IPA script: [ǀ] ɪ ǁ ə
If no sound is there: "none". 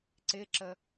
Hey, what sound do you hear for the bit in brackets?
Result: ǀ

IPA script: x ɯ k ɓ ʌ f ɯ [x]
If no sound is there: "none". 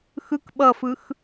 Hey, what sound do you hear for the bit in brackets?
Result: x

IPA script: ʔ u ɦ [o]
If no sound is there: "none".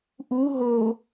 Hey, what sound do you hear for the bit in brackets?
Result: o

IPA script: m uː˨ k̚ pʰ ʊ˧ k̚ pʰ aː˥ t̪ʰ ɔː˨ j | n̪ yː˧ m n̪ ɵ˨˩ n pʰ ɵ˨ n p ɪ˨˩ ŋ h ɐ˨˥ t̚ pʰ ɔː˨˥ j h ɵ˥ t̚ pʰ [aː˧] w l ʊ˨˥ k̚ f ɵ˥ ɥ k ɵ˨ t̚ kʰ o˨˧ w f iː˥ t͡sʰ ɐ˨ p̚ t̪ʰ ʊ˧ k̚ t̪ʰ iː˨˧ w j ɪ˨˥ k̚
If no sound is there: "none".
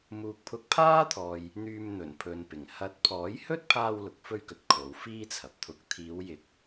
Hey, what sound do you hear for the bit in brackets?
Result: aː˧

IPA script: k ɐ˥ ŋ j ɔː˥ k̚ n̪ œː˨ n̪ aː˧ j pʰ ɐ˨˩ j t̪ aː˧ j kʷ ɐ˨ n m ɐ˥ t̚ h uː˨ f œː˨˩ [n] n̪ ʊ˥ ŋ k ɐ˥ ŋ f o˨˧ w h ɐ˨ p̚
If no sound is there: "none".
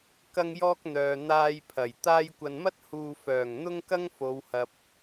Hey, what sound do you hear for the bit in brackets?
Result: ŋ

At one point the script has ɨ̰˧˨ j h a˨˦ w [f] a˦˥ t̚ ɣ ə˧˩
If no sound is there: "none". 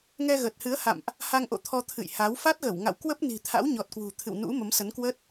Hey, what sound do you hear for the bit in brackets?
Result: f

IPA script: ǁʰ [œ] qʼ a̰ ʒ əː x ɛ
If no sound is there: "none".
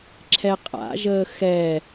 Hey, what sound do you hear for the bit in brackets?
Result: ɛ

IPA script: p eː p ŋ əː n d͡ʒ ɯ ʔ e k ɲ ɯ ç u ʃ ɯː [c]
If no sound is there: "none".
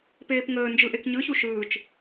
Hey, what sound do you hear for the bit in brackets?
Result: t͡ʃ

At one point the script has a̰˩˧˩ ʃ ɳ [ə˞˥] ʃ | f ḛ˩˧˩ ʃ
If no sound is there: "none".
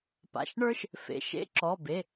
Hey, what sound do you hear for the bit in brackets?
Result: ə˞˥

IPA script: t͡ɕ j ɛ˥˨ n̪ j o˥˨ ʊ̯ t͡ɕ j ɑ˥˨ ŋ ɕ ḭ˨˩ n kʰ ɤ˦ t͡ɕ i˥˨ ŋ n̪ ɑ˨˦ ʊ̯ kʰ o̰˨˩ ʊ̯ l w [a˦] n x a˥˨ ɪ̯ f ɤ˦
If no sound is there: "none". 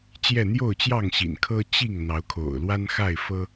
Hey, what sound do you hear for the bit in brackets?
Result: a˦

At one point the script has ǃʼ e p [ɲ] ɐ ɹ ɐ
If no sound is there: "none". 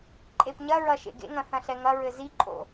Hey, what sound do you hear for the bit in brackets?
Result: ɲ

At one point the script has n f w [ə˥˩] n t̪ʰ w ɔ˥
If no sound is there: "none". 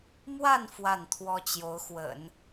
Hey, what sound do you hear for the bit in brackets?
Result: a˥˩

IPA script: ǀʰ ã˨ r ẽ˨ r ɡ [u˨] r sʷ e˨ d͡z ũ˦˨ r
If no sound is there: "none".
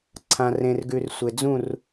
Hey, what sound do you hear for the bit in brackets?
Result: ʉ˨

